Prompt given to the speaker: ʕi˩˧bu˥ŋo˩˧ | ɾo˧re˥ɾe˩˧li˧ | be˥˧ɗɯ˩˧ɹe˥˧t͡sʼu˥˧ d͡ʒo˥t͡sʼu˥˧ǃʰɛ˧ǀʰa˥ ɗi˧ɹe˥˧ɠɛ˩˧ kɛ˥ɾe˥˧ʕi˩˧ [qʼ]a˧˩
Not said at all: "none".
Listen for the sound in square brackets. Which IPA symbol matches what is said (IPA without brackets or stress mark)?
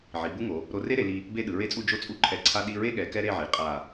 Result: qʼ